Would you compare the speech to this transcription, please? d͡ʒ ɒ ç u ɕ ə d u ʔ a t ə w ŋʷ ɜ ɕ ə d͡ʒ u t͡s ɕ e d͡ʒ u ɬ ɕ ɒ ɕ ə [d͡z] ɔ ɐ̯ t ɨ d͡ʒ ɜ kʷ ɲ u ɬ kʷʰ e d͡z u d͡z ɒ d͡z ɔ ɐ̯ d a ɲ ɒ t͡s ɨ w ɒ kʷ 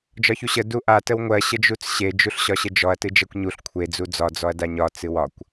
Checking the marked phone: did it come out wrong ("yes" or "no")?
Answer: yes